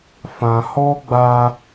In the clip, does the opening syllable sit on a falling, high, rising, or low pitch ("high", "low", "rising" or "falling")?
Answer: low